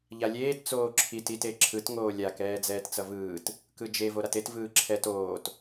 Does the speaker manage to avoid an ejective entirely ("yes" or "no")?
yes